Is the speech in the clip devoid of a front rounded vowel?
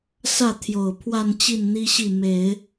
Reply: yes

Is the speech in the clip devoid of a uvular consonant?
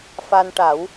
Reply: yes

